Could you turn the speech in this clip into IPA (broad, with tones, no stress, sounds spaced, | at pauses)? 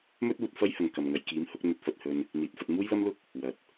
m ɵ˥ t̚ uː˧ t̚ f ɐ˥ j h ɐ˨ ŋ k ɐ˨ m ŋ ɐ˨ j k iː˨˥ m h ʊ˨˥ k̚ n̪ ɵ˧ t̚ f ɐ˨ t̚ h ɵ˧ n | n̪ iː˨ t̚ f ɐ˧ t̚ m uː˥ j l ɐ˥ m l ʊ˥ k̚ | w ɐ˨˥ t̚